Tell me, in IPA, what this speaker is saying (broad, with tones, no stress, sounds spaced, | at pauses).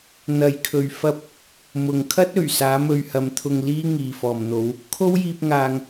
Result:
n̪ ɐ˨ j kʰ ɵ˨ ɥ f ɐ˧ p̚ | m ʊ˨ ŋ kʰ ɐ˥ t̚ ɵ˨˩ ɥ s aː˨˥ m ɵ˧ ɥ h ɐ˨˧ m t̪ʰ ʊ˧ ŋ l iː˥ ŋ iː˨ f ɔː˨ m n̪ o˨˥ w | kʰ o˥ w j iː˧ p̚ ŋ aː˨ ŋ